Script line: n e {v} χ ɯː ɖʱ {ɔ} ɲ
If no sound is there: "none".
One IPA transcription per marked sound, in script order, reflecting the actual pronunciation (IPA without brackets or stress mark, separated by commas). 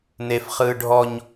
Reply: f, ɔ